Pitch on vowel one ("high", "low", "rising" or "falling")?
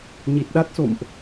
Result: low